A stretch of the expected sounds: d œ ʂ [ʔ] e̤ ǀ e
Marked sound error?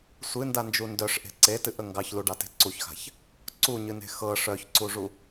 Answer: no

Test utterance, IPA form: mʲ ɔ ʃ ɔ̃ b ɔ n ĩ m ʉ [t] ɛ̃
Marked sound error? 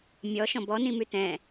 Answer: no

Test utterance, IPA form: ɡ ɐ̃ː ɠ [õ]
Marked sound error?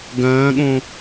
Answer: no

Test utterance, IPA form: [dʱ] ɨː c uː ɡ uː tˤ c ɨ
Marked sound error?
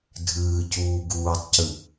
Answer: no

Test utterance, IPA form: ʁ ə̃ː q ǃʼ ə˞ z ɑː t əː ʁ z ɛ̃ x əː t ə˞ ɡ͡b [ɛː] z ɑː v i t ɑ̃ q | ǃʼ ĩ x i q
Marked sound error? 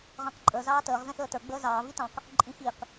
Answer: yes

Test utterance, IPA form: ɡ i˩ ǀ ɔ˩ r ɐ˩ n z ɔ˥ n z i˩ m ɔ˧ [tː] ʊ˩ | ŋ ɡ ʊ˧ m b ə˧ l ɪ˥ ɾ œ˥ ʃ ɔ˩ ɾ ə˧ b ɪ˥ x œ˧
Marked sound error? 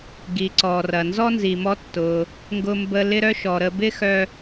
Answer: no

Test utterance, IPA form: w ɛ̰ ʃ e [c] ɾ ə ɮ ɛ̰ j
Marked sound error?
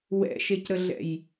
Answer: no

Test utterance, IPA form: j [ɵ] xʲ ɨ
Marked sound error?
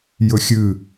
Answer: no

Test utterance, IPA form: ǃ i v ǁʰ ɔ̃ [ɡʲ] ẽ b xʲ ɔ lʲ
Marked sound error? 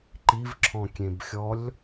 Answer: yes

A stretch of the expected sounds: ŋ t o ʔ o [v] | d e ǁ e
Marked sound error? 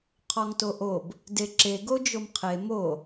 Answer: yes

